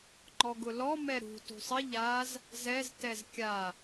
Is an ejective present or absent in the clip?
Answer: absent